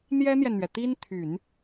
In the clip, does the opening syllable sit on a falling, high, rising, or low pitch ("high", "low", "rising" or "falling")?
high